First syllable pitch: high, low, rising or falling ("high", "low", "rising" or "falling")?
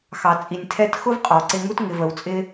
low